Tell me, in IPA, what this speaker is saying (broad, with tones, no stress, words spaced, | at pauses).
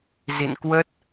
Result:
zḭ˧˨nkwə˦˥t̚